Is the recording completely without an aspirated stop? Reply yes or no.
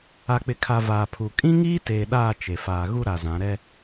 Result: no